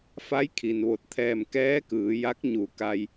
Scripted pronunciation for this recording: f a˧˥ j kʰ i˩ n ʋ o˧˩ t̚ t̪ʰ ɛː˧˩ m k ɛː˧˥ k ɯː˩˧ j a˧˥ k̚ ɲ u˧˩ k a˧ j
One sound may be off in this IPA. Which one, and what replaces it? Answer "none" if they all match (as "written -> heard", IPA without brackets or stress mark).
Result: none